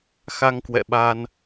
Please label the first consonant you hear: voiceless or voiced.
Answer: voiceless